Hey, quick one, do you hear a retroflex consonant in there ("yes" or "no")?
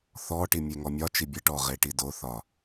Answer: yes